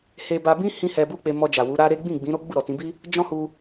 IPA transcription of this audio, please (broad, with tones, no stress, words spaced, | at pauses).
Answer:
he˧ba˧bĩ˦ hĩ˦hɛ˧bu˦k͡pe˧ mɔ˧d͡ʒa˨ wu˨˦ɾa˦ɾe˦ ɡ͡bĩ˦˨ɡ͡bĩ˨˦ɾo˦ ɡ͡bu˦˨ɾɔ˨tĩ˨˦bi˦ | d͡ʒɔ̃˦hu˧